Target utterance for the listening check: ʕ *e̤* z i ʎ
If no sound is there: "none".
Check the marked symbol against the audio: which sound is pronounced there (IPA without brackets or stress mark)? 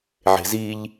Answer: e̤